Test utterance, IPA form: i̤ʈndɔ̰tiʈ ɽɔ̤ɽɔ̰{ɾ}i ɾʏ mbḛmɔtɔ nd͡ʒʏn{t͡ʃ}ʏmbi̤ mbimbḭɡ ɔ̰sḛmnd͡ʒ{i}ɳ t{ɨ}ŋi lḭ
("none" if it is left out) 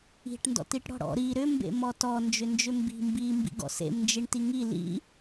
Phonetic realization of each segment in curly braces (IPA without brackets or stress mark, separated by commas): ɾ, d͡ʒ, i, i